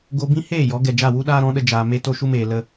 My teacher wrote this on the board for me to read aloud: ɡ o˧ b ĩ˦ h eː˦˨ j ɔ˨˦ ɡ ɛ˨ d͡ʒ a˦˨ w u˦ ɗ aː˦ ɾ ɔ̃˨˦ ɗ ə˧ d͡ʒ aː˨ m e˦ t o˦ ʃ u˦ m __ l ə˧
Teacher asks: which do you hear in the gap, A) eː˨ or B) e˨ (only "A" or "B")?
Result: A